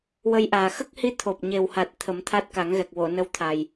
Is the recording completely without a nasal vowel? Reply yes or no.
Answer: yes